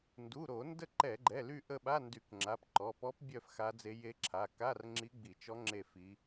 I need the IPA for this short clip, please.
n d u˩˧˩ ɾ o˧˩˧ n d ə˦˨ ǃ ɛ˧˩˧ ɡ͡ǃ ɛ˩˧˩ l y˦˨ ʔ ə˦˨ ɓ a˧˥˧ n d y˧˩˧ k ŋ͡ǁ a˩˧˩ p ǃ ɔ˩˧˩ p ɔ˧˥ p bʲ œ˦˨ f x a˧˥ d͡z e˧˥ j e˧˥ ǁʰ a˩˧˩ k a˧˥˧ r ŋ͡ǁ i˧˥ ɡ͡b i˧˩˧ t͡ʃ ɔ˧˥ ŋ͡ǁ e˦˨ f i˧˥

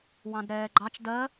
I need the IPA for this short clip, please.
w ɑ̃ d ɾ ɛː ɡ͡ǃ ɑ t͡ʃ d ɜ

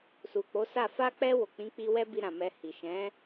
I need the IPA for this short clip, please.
s u˨ k͡p o˨˦ s a˦˨ f a˧ k͡p ɛ˧ w o˨ k͡p ĩ˨˦ k͡p i˧ w ɛ˦ b i˧ ɾ ã˨ m ɛ˧ h i˨ ʃ ɛ̃˨˦

